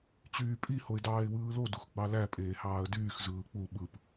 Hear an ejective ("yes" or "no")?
yes